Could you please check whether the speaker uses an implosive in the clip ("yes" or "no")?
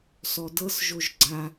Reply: no